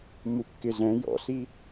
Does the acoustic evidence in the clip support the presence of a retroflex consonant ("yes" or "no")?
no